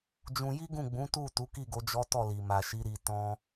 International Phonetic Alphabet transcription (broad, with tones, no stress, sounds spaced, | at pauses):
d͡ʒ ũ˧ j i˦ ɡ ũ˦˨ ɡ͡b ũ˨˦ t u˦˨ t u˨˦ k i˦˨ ɡ o˨˦ d͡ʒ ɔ˦ t ɔ˦˨ l i˨ m a˨ ʃ i˨˦ ɾ i˧ t ɔ̃˦